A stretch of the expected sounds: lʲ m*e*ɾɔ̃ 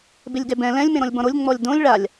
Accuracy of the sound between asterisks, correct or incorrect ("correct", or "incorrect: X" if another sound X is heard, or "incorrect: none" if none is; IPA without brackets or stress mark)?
incorrect: ẽ